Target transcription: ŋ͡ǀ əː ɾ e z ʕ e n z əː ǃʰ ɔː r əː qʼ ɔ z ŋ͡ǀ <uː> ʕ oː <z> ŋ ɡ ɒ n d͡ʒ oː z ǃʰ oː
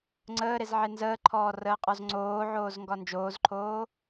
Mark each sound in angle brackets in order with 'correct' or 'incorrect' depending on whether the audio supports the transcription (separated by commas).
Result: incorrect, correct